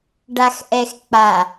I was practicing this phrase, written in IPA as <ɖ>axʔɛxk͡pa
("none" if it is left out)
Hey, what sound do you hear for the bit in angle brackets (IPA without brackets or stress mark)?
ɖ